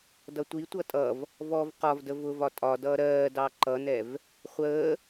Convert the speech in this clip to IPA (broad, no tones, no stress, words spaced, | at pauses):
dʌtʷitʷʌ tʼʌv | vɔv qɒvdə vʊvɒ tʼɒ dʌːɾɜːdɑ ǃʌnɛv | χʷəː